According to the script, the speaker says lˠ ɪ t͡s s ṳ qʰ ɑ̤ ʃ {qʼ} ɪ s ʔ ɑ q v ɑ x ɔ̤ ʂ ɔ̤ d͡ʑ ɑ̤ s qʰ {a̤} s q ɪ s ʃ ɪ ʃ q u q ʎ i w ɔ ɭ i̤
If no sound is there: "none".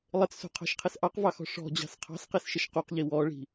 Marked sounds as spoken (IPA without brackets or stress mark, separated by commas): qʰ, ɑ̤